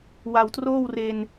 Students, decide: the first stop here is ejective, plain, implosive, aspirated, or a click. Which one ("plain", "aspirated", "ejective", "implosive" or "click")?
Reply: plain